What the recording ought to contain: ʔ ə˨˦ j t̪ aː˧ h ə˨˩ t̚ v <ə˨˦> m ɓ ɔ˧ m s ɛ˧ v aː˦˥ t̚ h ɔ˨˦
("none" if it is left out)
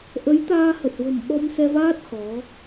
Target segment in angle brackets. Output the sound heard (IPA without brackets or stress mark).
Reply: ə̤˨˩